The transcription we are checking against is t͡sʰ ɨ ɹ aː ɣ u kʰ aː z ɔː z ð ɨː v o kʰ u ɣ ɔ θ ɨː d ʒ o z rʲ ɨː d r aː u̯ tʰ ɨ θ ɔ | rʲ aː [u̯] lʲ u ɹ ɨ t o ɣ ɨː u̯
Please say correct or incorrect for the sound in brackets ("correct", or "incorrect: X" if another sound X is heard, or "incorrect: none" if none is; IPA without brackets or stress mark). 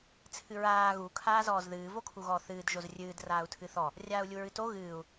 correct